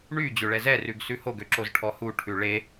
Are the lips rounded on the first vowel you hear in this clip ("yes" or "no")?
yes